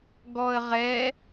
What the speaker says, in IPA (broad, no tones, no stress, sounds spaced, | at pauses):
ɡ ɔ ə̯ ʁ ɛ